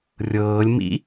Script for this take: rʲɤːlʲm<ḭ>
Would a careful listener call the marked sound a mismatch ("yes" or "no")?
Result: no